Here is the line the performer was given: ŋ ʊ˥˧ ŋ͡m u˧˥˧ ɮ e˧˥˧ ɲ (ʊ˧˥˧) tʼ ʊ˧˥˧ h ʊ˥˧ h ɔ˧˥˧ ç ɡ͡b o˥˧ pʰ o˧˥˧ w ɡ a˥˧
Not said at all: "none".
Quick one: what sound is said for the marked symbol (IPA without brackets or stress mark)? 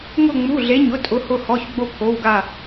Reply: ʊ˧˥˧